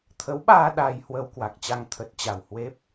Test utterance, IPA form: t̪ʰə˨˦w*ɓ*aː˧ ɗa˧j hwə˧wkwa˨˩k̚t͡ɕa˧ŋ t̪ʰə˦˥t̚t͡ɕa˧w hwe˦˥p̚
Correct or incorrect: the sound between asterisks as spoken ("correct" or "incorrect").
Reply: correct